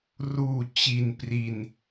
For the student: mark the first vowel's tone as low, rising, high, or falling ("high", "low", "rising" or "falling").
low